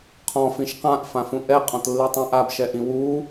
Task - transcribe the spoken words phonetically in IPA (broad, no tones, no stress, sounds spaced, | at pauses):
qʰ ɔ̃ f ĩ ʃ q ã ʔ f ã f ũ ʔ ɛ qʼ ɔ̃ t lː i tˤ ã ʔ a b ʃ ɛ ʔ ĩ w u